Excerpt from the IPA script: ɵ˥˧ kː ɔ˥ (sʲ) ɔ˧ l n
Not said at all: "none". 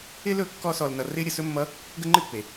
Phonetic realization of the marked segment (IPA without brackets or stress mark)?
s